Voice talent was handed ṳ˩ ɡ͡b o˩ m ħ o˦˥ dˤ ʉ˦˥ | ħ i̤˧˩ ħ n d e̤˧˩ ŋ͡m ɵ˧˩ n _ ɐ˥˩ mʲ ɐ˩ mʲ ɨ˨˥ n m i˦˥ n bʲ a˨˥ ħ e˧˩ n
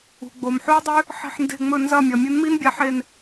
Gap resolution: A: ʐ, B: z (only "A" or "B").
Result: B